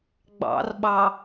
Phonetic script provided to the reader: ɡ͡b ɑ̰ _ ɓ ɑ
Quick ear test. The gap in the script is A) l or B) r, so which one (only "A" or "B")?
B